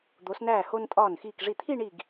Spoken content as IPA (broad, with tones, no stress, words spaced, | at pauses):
d̪o˩˧snæː˧˩ ho˧ntʼɒː˧˩n xiː˧˩kʐi˧˩t̪ʰi˥˧ɳi˧˩ɡ